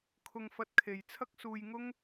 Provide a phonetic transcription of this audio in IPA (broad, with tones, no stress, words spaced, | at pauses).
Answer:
kʰʊ˧ŋfɐ˧t̚kʰe˨jt͡sʰɐ˥k̚ suː˧jŋʊ˥ŋ